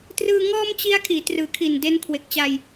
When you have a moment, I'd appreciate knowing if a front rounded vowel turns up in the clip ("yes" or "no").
no